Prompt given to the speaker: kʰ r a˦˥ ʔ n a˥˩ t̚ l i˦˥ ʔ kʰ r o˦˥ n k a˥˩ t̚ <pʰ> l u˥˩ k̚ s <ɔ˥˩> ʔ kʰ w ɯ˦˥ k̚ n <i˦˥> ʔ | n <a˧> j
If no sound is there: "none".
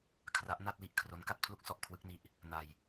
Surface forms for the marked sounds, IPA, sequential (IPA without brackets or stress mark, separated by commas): pʰ, ɔ˥˩, i˦˥, a˧